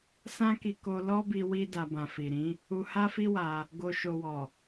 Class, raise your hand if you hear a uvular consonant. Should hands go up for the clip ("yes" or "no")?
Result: no